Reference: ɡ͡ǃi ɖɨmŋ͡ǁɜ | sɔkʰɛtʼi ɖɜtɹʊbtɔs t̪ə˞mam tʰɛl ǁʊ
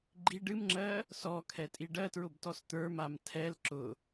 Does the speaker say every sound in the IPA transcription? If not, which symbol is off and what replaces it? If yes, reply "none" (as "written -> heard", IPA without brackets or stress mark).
none